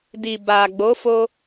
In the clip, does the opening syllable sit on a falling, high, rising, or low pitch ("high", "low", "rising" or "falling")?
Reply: low